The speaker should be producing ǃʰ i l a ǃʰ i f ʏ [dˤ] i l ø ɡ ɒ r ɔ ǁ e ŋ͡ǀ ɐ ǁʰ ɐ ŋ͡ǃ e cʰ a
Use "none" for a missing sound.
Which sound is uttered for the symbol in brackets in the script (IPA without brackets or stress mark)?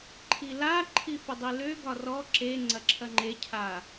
dˤ